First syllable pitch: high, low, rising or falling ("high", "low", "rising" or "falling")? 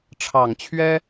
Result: low